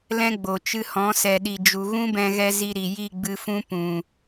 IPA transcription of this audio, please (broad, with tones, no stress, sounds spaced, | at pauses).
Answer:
l ɛ̃˦ ɡ͡b o˨ t͡ʃ ɨ˧ h ɔ̃˨˦ s ɛ˨ ɗ i˨ d͡ʒ u˨ ɣ ũ˦ b ɛ̃˧ ɣ ɛ˧ z i˧ ɾ i˨ j i˦˨ ɡ͡b ɨ˧ f ũ˦ p ũ˨